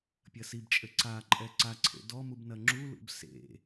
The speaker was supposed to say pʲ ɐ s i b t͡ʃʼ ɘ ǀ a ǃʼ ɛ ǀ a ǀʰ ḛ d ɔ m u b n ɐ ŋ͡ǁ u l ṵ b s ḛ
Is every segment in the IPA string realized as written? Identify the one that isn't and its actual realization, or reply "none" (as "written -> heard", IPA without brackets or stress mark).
none